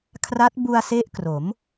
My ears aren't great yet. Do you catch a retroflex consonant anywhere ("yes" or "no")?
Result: no